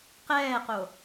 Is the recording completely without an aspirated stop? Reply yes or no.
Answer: yes